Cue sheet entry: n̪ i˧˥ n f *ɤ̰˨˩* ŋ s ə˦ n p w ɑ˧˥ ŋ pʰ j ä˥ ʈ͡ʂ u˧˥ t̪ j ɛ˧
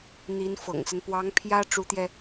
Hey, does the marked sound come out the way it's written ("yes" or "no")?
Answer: yes